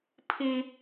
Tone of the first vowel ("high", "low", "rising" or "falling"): high